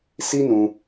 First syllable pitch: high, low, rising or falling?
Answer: high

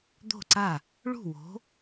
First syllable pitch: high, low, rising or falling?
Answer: falling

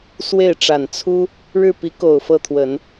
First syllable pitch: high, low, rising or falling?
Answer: falling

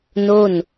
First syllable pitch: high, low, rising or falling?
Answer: falling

